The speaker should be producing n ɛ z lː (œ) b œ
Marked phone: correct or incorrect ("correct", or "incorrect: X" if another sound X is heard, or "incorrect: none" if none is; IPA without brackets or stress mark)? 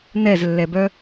incorrect: ɛ